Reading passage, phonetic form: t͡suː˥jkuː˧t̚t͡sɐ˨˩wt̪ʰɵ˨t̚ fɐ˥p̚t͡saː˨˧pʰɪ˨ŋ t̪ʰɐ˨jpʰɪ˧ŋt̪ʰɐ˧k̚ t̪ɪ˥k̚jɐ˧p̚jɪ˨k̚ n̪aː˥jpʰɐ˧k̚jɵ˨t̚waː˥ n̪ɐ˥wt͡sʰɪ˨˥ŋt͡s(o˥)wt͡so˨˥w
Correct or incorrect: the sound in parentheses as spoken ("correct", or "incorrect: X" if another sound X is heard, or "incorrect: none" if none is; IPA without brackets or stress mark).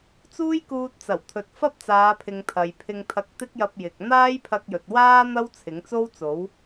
correct